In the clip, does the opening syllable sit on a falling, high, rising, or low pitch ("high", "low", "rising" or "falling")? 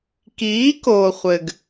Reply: rising